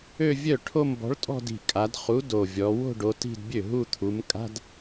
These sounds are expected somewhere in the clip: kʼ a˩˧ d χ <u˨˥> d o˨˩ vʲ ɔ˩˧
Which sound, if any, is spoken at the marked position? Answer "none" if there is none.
u˨˥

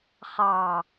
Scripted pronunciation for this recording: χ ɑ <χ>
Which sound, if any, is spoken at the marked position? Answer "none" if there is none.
none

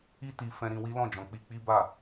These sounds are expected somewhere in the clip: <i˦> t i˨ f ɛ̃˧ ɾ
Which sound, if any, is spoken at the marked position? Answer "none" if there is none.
i˧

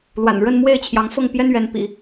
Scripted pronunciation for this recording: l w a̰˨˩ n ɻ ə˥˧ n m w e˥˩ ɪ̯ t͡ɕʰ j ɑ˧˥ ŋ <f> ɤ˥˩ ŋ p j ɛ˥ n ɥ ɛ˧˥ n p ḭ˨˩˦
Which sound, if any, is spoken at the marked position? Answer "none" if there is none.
f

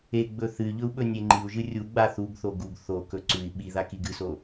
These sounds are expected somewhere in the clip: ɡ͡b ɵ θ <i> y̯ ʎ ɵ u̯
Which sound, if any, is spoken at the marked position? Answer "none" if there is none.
ɨ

